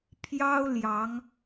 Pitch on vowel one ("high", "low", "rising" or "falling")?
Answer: high